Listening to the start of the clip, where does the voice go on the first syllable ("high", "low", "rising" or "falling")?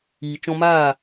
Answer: low